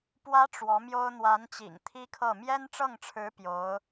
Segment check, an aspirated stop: present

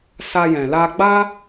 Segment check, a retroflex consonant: absent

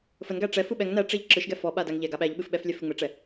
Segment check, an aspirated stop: absent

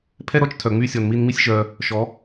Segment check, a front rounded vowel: present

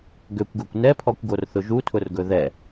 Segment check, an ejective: absent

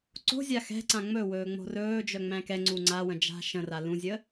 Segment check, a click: present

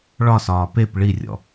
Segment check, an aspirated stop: absent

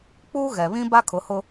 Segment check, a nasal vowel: present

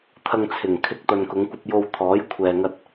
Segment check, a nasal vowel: absent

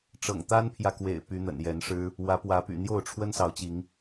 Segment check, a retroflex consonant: present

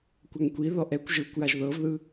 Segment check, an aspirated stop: absent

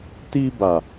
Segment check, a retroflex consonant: absent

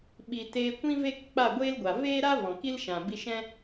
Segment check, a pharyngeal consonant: absent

